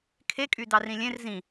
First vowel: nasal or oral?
oral